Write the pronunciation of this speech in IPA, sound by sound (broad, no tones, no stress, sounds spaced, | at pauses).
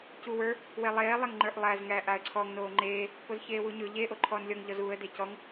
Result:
c u w ə˞ | w e lˠ eː lˠ e ŋ ŋ͡ǃ ə˞ ʔ lˠ æ z ŋ æː ʔ a ə̯ ǀʰ ɔ ŋ n oː ŋ͡ǃ eː | p o z ç eː w u ɲ ɵ ʎ e ʔ o ǃʰ ɔ n lʲ ɔ ŋ ʎ ɔ z uː ə̯ d e c ɔ ŋ